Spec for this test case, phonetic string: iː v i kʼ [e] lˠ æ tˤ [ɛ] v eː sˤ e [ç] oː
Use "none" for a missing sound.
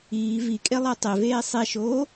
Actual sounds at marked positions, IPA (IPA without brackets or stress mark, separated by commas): e, e, ʃ